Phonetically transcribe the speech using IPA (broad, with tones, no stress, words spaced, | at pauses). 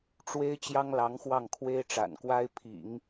ʈ͡ʂwe˥ɪ̯ t͡ɕjɑ˥ŋlɑ˧˥ŋxwɑ˥˩ŋ kʰwe˥ɪ̯ʈ͡ʂa̰˨˩nkwa˥ɪ̯ pʰḭ˨˩˦ŋ